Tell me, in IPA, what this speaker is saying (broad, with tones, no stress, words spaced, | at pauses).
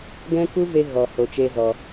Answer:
ɡɛ̃˦ku˦ ve˦ ɣɔ˧ ho˧t͡ʃe˦zɔ˧